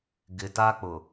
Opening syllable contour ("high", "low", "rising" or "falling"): low